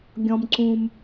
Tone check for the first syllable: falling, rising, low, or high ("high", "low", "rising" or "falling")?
low